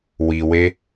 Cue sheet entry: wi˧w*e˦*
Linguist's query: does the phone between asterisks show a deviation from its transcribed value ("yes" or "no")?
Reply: no